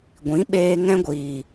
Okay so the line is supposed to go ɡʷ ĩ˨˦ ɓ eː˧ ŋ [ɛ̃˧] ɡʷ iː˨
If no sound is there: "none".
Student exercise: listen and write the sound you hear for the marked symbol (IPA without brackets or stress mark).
ɛ̃˧